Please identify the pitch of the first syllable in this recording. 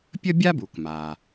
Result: high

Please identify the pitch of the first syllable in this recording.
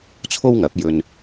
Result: high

